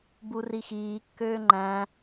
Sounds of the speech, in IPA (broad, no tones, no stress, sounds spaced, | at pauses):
b u r i x iː kː øː ŋ͡ǃ æ̃